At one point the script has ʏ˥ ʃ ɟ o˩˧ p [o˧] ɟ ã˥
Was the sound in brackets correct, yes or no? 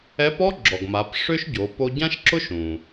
yes